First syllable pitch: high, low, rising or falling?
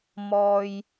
low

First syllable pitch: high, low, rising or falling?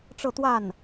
falling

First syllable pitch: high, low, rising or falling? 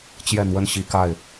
falling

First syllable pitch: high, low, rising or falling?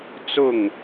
falling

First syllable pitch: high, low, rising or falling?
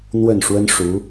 falling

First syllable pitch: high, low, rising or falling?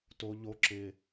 high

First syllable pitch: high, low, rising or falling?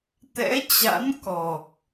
rising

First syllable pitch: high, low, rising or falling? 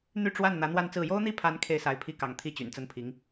falling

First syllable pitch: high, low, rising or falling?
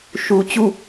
low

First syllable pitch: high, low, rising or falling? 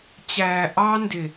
low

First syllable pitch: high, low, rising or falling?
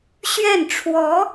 falling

